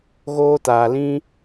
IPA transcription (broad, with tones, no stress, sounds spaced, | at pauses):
ɣ oː˧ t aː˨ l ĩ˧